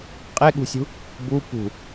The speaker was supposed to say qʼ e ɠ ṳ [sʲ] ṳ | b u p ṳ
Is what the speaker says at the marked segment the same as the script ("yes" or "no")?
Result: yes